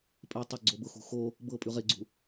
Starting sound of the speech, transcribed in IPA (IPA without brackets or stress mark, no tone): pʼ